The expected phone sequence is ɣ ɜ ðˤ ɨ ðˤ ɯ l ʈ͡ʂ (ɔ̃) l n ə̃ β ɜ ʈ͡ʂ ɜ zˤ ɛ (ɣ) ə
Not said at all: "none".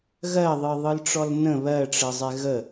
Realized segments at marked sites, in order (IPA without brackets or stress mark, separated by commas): ɔ, ɣ